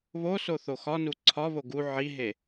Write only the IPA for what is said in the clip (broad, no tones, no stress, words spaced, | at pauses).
βosoθo xɒnu ǀʰɒβo ɡu ʕiɦe